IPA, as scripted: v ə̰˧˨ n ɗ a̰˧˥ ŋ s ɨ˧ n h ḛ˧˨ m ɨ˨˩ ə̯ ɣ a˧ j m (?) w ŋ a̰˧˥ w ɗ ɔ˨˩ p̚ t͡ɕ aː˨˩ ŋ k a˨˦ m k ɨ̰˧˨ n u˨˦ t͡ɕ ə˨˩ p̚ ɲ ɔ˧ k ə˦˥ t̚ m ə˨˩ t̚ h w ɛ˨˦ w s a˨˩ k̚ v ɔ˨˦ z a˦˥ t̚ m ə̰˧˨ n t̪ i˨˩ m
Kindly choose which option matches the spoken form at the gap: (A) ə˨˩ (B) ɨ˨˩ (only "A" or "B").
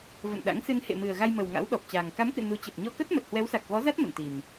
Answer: A